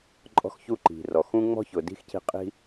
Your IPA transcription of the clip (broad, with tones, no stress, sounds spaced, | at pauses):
ǃʼ ɔ̤˦ x ç u˦ ǃ i̤˨ r ɔ˨ x ũ˦ ŋ͡m ɔ̤˦ ç ʊ˨ d i̤˦ x c i̤˧ qʼ i̤˦